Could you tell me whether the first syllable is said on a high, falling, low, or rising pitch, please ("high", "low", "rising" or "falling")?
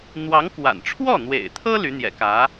rising